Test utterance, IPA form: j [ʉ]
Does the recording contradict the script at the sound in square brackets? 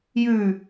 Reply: no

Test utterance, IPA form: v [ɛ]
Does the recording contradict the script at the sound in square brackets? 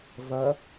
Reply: yes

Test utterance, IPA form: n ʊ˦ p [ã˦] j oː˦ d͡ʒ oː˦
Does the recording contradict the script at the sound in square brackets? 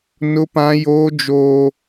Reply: no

